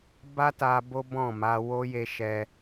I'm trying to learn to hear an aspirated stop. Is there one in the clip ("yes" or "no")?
no